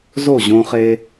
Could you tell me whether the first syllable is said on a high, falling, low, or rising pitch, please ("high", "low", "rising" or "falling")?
falling